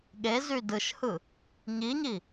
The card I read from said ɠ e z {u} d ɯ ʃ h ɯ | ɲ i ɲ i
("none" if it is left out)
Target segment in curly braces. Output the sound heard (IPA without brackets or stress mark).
y